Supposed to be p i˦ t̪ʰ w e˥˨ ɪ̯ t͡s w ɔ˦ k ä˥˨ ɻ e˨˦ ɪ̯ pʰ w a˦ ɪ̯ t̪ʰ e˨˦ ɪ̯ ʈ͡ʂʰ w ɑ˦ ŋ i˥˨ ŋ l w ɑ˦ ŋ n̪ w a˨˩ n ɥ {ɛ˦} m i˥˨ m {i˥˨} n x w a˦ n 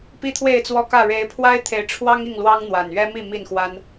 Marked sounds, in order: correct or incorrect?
correct, correct

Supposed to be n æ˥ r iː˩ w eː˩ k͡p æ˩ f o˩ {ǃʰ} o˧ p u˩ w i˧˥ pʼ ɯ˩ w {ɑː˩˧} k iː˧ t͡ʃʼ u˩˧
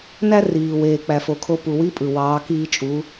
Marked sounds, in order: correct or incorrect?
incorrect, correct

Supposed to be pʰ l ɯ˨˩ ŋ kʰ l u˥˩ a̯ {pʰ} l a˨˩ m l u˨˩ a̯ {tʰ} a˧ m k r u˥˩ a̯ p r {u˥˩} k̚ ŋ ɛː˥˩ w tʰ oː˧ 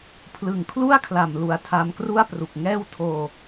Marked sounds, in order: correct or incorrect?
incorrect, correct, incorrect

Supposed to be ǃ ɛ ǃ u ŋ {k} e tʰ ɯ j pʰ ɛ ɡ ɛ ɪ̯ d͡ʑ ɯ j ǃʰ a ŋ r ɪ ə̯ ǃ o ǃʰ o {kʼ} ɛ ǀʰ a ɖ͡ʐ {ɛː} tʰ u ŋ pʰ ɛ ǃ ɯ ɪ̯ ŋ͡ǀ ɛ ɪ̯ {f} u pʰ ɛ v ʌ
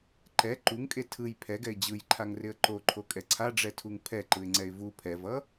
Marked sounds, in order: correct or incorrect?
incorrect, correct, incorrect, incorrect

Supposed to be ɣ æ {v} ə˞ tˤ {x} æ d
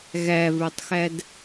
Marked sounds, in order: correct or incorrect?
correct, correct

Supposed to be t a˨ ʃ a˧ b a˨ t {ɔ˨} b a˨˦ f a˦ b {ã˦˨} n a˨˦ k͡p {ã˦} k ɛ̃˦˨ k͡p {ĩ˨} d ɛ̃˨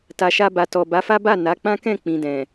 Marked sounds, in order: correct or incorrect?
correct, incorrect, correct, correct

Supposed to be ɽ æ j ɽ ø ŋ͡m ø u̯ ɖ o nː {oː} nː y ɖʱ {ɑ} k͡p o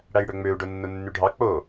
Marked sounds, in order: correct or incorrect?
incorrect, correct

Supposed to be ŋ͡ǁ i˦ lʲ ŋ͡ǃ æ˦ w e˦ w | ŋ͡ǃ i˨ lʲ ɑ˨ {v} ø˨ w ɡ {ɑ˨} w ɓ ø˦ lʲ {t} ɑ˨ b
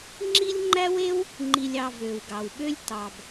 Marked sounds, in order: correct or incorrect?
correct, correct, correct

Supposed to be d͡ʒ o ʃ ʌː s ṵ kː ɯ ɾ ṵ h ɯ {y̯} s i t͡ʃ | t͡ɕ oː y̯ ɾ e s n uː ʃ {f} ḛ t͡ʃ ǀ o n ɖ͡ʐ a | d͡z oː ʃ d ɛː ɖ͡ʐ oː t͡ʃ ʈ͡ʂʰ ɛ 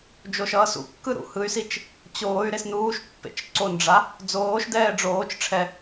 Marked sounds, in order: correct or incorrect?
correct, incorrect

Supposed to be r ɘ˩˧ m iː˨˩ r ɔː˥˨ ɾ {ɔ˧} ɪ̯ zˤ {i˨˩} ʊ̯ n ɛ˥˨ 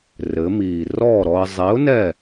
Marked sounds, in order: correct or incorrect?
correct, incorrect

